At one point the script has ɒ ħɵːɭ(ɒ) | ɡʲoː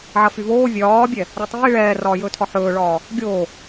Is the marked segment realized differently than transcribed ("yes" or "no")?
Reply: yes